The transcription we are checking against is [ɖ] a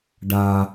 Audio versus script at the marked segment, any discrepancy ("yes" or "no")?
no